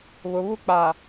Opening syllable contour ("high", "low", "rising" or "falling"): low